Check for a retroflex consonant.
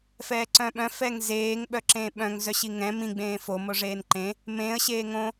present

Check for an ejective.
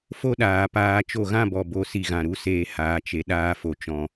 absent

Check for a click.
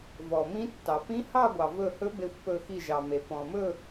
absent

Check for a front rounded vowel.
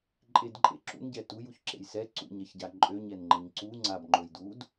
present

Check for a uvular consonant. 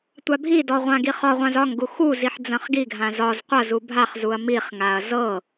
present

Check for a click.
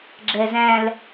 present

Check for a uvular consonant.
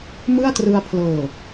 absent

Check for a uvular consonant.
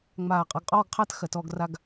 present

